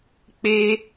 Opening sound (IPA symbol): k͡p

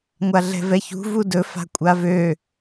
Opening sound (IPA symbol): ŋʷ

